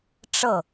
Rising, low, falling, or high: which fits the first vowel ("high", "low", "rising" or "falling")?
falling